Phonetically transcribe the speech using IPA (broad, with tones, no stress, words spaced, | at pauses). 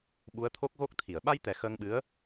ɓu˧˥ə̯t̪ʰo˦˥k̚ɣo˦˥k̚t̪ʰi˨˩˨ə̯ ɓa˧jt̪ɛ˨˩˨ xəː˧ŋɓɨ˧˥ə̯